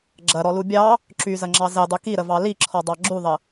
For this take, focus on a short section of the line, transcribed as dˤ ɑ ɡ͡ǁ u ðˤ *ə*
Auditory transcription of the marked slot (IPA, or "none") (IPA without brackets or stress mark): ə